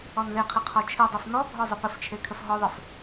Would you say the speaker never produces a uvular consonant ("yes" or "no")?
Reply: no